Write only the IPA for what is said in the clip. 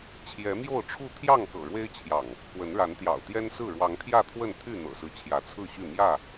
t͡ɕʰjɛ˨˦mjo˥˨ʊ̯ʈ͡ʂʰu˥˨ t̪ʰjɑ˥˨ŋkɤ̰˨˩ɻwe˦ɪ̯t͡ɕʰjɑ̰˨˩ŋ | kwə˨˦nɻa˨˦n t̪jɑ̰˨˩ʊ̯t̪jɛ˦nsɹ̩˥˨ ɻwɑ˨˦ŋt̪ʰjä˥˨t̪ʰwə˥˨n t̪ʰy˥˨n̪ɤ̰˨˩sɹ̩˦ t͡ɕʰjä˨˦t͡sʰɹ̩˥˨ɕy˥˨ mjä˥˨

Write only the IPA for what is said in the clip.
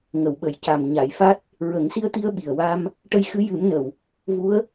ŋə˨˩˨wɓə˨˩˨jca˨˩m ɲa˨˩˨jfa˦˥t̚ | ɹə˨˩˦ŋsi˧ə̯t̪i˧ə̯ ɓi˨˩ə̯ wa˧m | ʈə˧jxɨ˧˥ jɨ˨˩˦mnə˨˩˨w | vu˧˥ə̯

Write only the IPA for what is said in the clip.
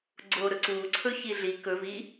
ɡ͡ǀoɾɵ ǀuǀʰɵ çiɮi kɵ vi

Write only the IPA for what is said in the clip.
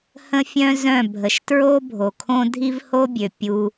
hə̃˦fʲœ̃˦zœ̃˦˨ bʱə˨ʃtɹo˦ bʱo˨kʰõ˦ dʱi˦vho˦bʲø˨ pʲu˦

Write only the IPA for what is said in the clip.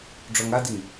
ɖ͡ʐɔŋadiŋ

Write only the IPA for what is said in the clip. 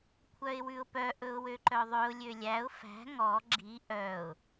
kʷʰœɪ̯wʉʊ̯pœ ʔɵʊ̯wøǃœðˤøʊ̯ lʲølʲæʊ̯ fæ̤ ŋɔ ɡ͡ǁi ʔœʊ̯

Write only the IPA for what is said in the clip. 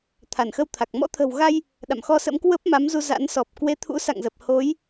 t̪ʰa˧˩nxə˧wt̪ʰa˨˩k̚ mɔ̰˧˥t̪ʰə̤˨˩wɣa˧j | ɗa̰˧˨mxɔ˧sə̰˧˥m kwə˦˥p̚ ma˨˦mzu˧za̰˧˥n sɔ˨˩p̚ kwe˨˦t̪ʰṵ˧˥sa̰˧˨ŋzə˨˩p̚ ho˨˦j

